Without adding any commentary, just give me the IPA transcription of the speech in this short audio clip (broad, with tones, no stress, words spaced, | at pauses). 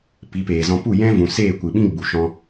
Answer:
pi˨˦peː˨zɔ̃˧ pu˦˨jɛ̃˦ vũ˨seː˦˨kʷɨ˨ɓĩ˦ ɡ͡bu˨ʃɔ̃˧